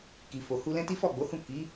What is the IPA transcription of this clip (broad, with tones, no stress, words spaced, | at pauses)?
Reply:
ki˨fo˨hu˧ lɛ̃˦ti˦ fɔ˦˨ɡ͡bo˨˦hũ˦˨ ki˨˦